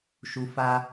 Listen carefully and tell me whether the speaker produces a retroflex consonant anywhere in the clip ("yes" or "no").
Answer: no